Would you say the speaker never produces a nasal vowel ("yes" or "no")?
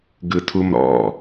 yes